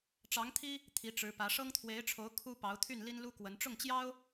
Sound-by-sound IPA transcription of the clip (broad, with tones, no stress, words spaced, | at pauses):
ʈ͡ʂɑ˧˥ŋt̪ʰi˥ | t̪ʰi˧˥ʈ͡ʂɻ̩˧˥pä˧˥ ʂɤ˥ŋt̪ʰwe˧˥ɪ̯ʈ͡ʂʰo˧˥ʊ̯ kʰu˥ pɑ˧˥ʊ̯t̪ʰy˥˩n li˥nlu˥ kwə˧˥n ʈ͡ʂʊ˥˩ŋt͡ɕjɑ˥ʊ̯